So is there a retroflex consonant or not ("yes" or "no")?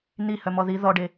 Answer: yes